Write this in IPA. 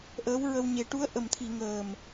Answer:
ʔ əː˧˥ w ɹ ə˧ w ɲ e˨˩˦ ʈ u˧˥ ə̯ ʔ ə˨˩ m t̪ʰ i˨˩˨ ŋ əː˨˩ m

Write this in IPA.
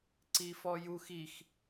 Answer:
ǀ i f ɔ j u x i x

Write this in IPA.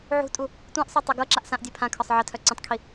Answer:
ʕ ṳ tʼ u | tʷ ẽ ʔ sˤ œ tˤ ɤ ɡ ɤ ǁ a ʔ s ã ʔ dʲ e pʰ ã kʰ ɒ sˤ ʕ ə tʰ œ ǀ ə̃ tˤ kʰ i

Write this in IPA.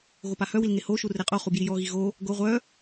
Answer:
ɣ o p a h œ w i l ŋ e h o ʃ u r e qʼ o χ u b j i j ɔ ɣ i ɣ o | ɡ o ʁʷ œ

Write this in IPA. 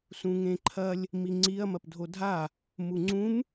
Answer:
s ũ ŋ ẽ ǃʰ ɐ lʲ | m i ŋ͡ǀ i ɐ̯ m ɐ p dʱ o dʱ a | m u ŋ͡ǀ ũ m

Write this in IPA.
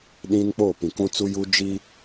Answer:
ɗ ĩ˦ n k͡p oː˦˨ p ĩ˨ k ũ˦ t͡s u˦ j uː˦ d͡ʒ i˦

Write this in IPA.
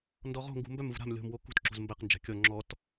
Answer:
n d ɔ ʁ o̤ ŋ ɡ ṳ m b œ m v ṳ ɾ a̤ m lʲ o̤ m w o k ṳ t ǁ o̤ z m b ɛ q n d͡ʒ a̤ kʲ ɔ ŋ͡ǁ ɔ t

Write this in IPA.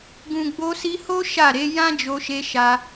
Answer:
ɡ ũ˨ ɡ͡b o˧ s i˧ h o˦ ʃ a˦˨ ɾ e˨˦ j ã˦ d͡ʒ o˧ ʃ e˧ ʃ a˧

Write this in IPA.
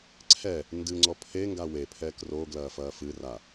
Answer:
ǀʰ ɛ | n d ɨ ŋ͡ǀ ɔ pʰ e ŋ ɡ a w e pʰ ɛ k r o ɡ l ɐː f ɐː f ɨ r a

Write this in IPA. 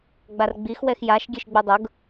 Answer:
ɡ͡b a r ɡ͡b i x w ɛ x j a ʃ ɡʲ ɛ ʃ ɡ͡b u dˤ ʊ ɡ

